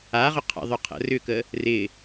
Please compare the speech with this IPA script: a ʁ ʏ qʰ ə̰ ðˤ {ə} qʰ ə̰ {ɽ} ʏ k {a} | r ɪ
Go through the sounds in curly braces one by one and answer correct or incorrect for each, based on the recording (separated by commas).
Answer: incorrect, incorrect, incorrect